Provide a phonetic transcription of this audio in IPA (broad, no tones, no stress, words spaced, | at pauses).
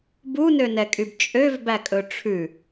bunønɛkʼyb t͡ʃʼøvbækʼɵ ʈ͡ʂʰʉ